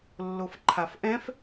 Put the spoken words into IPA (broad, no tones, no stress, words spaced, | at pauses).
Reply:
lːofǃʰafʔɛ̃f